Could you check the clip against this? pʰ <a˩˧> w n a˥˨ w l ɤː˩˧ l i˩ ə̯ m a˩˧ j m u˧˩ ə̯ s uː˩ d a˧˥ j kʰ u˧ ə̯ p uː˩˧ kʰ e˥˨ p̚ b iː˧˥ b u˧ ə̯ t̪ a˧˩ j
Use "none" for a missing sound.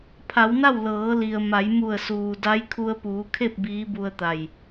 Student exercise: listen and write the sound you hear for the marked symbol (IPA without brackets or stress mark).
a˩˧